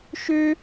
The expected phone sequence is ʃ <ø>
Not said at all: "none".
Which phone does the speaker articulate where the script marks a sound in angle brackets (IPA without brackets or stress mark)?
ø